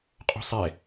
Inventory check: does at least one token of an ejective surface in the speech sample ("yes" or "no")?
yes